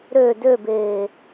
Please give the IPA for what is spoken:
ɾ ø d ø b eː

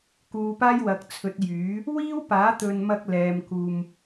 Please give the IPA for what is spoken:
k uː˨˧ p aː˥ j w ɐ˨ k̚ t͡sʰ ɵ˨˥ t̚ j yː˨˥ | w iː˥ w p aː˨˥ t̪ ɵ˨ n m ɐ˧ k̚ l ɛː˨ m k uː˨ m

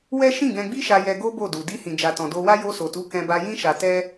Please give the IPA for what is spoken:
w ɛ˦ ʃ ĩ˦˨ ɡ ɛ̃˧ ɡ͡b i˦ ʃ a˧ j ɛ˧ ɡ o˦ b o˦˨ d u˨ d i˧ h ĩ˨ d͡ʒ a˨ t ɔ̃˨ d o˧ w a˦ j o˧ s o˨ t u˨˦ k ɛ̃˧ b a˧ j ĩ˦ ʃ a˧ t ɛ˦

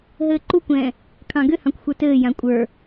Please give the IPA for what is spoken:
ɦ ɘː ǃ u kʷ ɛ̃ː | kʰ ɑ̃ ɡ ʏ h ɑ̃ kʷ xʷ ə˞ t ɘː j ã kʷʼ ə˞

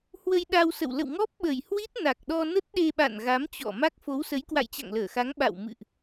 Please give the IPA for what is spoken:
h w ə˧ j ɗ a˧ w s ə̰˧˨ w l ə̰˧˨ w ŋ ɔ˦˥ p̚ ɓ ə˨˩ j h w i˦˥ t̚ n a˨˩ k̚ ɗ ɔ˧ n ə˦˥ t̚ ɗ e˧ ɓ a̰˧˨ n ɣ a˨˦ m t͡ɕ ɔ̰˧˨ m a˦˥ k̚ f o˨˦ w s ə˨˦ j k w a̰˧˨ j t͡ɕ a̰˧˨ ŋ l əː˧˩ x a˨˦ ŋ ɓ a̰˧˨ w m ɨ̰˧˨ ʔ

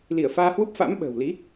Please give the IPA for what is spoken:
l i˧˩ ə̯ f aː˧ h w u˦˥ p̚ f a̰˧˥ m ɓ ə̤ː˨˩ w l i˨˦

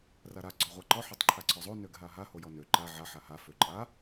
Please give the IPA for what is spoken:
r a ɾ a ɡ͡ǀ ɔ ʁʷ a ǃ ɔ ħ ɔ tˤ ǃʰ a ǀʰ ɔ zˤ o n ø ɡ ɦ a ɦ a h o j ɔ n ø ǃ a ʕ a ħ a h a f ø ǃʼ a

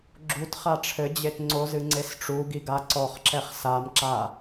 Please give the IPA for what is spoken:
ɡ͡ǁ u t χ a ʈ͡ʂʰ ɘ d͡ʑ e t ŋ͡ǀ o z ɨ ŋ͡ǀ e s ʈ͡ʂ u ɡ i ɡ a ǀ ɔ χ ǁ ɛ χ s a m ǁ a

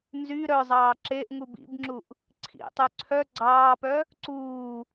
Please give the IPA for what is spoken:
n z y ɾ œ zˤ ɑː ǁ e ʔ ŋ u b ḭ b ŋ͡ǁ u ʔ | ǀʰ ḭ tˤ y ǀʰ œ ɡ͡ǀ ɑː p œ | ǀ uː

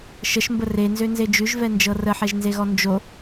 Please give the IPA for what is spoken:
ʃ ə ʃ m b ə r e n z ø n z e d͡ʒ ʉ ʒ v ɛ n d͡ʒ ɤ r ə ħ ɛ ʒ n z e ɣ ɔ n d͡ʒ o

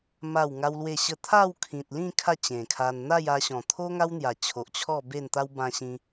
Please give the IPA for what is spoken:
m a˥˧ w ŋ a˦ w l w e˥˧ ɕ ə˥˧ t̪ʰ a˥˧ w kʰ ĩ˨ t̚ l ĩ˥˧ kʰ a˥˧ t͡ɕ ẽ˨˩ kʰ a˧ n n̪ a˥˧ j a˧ ɕ ɔ̃˨˩ t̪ʰ o˦ ŋ a˦ w n̪ j a˨˩ t͡ɕʰ o˨ ʔ t͡ɕʰ ɔ˥˧ b e˥˧ n t̪ a˦ w b ã˧ ɕ ĩ˧

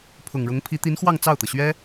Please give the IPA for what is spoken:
pʰ ʊ˨˩ ŋ ɻ ʊ˧˥ ŋ pʰ i˧˥ t̪ i˧˥ n x w ɑ˥˧ ŋ t͡s ɑ˥˩ ʊ̯ t̪ ɤ˩ ɕ ɥ ɛ˥

